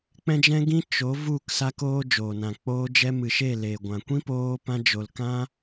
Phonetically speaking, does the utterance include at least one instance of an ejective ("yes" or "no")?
no